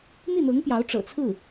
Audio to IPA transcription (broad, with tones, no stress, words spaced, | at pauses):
n̪i˥˩n̪ɤ˧˥ŋpjɑ˧˥ʊ̯ ʈ͡ʂɤ̰˨˩t͡sʰɹ̩˥˩